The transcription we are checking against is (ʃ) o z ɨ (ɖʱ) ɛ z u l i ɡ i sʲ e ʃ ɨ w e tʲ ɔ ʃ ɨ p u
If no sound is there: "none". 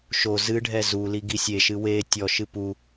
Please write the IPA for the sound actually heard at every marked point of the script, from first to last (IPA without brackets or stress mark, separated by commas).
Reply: ʃ, ɖʱ